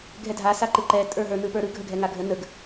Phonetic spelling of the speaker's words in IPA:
ɡʱɛdʱa saǃɯǃɛ tʼə˞ɦə˞ nɯpə˞ɾɯ ɡʱəɡʱɛŋaɡʱə nəɡ

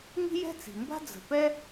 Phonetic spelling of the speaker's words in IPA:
ŋi̤˥jɛ̤˥t͡si̤˩mba̤˥ d͡zə̤˩pɛ˥

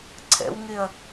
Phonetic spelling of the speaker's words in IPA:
ǀʰɛ̰wŋeɐ̯

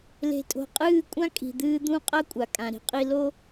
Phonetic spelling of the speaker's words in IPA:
le̤˨tʼo̤˨qʼɨː˦˨kʷʼã˦ kʼi̤˨d̪ɨː˦ d̪ũ˦qʼɐ˦ kʷʼa˨kʼã˨ɾi̤˦qʼi˦ lo˦

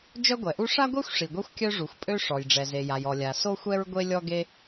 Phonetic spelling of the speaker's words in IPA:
d͡ʒœ˥ɡʷɛ˩ʔu˥ ʂa˥ɡʷe˥xʷ ʂi˩ɡʷɛ˥xʷkʲœ˥ ʐu˩xʷpʼø˥ ʂɔ˩jɖ͡ʐɛ˩ ze˩ja˩jɔ˩ lʲa˩ so˥xʷɛ˥ɹ ɡʷe˥lʲɔ˥ɡe˥

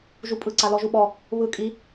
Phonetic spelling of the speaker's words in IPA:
ʒupʼɯ ǀalɔʒuɓɔ | βɯ kʼi

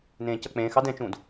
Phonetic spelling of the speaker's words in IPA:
nẽːcʌk͡pẽːxɑd ɛ̃t͡ʃũːd

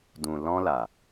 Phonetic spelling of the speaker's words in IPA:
dũ˨ lɔ̃˦la˨

